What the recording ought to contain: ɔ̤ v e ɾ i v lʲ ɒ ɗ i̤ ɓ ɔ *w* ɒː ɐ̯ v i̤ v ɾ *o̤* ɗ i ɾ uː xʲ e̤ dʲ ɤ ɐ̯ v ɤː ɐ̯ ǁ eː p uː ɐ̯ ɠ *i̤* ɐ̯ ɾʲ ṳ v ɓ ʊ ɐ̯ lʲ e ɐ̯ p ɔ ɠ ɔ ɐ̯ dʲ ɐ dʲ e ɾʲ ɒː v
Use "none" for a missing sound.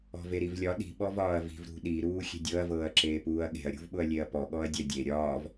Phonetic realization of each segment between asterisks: v, ṳ, e̤

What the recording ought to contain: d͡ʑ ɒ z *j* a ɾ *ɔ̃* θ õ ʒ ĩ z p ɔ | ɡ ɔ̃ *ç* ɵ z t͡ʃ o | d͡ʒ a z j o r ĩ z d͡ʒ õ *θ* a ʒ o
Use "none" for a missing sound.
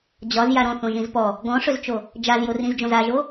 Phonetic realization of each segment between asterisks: j, ɔ̃, ʂ, z

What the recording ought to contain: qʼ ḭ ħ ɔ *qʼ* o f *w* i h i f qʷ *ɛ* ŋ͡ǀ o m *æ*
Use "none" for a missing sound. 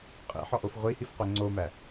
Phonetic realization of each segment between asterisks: ʔ, ʁʷ, ɛ, æ

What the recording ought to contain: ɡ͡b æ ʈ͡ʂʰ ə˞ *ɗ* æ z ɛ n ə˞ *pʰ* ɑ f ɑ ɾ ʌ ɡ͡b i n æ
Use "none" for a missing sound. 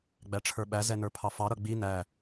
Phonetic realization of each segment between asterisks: ɓ, pʰ

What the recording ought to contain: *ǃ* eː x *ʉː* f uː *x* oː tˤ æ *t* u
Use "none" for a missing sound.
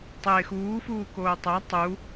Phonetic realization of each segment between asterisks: tˤ, uː, k, tˤ

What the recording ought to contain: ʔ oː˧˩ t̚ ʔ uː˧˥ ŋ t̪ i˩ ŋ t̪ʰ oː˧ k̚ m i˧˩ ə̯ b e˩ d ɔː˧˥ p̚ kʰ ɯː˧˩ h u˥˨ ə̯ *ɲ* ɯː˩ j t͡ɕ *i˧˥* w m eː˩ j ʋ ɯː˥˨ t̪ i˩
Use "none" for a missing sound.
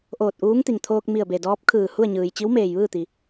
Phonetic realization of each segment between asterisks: ɲ, i˧˥

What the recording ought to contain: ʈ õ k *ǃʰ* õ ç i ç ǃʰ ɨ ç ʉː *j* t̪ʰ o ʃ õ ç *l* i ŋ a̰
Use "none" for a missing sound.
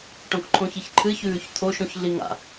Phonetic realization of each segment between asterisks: ǃʰ, ç, ɮ

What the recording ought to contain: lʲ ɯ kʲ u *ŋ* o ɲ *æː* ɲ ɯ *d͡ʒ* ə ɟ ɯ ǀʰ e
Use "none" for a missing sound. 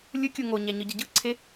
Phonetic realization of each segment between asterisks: ŋ, æ, ɟ

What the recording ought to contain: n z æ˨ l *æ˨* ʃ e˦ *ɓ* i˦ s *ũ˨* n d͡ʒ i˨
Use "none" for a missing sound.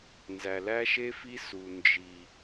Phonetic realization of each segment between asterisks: æ˦, f, u˨

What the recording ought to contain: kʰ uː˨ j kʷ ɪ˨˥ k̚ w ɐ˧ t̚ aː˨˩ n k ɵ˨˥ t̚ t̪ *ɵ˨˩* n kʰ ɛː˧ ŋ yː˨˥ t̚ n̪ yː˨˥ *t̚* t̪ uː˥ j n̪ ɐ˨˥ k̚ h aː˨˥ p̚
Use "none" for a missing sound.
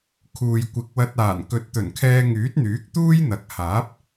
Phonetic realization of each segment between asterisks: ɵ˨˩, k̚

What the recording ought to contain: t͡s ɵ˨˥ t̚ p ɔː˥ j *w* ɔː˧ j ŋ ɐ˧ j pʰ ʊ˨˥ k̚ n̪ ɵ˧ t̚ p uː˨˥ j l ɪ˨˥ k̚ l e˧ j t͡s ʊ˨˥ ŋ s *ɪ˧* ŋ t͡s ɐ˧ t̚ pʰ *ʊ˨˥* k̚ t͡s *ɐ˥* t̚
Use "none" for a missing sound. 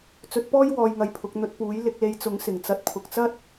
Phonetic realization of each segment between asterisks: w, ɪ˨˩, ʊ˨˥, ɐ˥

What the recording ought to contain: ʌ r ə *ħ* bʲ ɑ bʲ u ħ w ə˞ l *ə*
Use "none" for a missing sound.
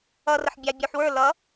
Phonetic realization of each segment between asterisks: ħ, ʌ

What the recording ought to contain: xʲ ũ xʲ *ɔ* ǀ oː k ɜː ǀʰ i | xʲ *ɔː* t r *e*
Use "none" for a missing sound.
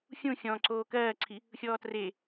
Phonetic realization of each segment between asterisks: ɔ̃, ɔː, e

